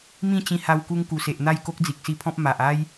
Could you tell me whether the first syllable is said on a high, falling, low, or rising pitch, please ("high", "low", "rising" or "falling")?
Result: falling